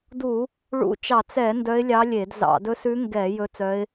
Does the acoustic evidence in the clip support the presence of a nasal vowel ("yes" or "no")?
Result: no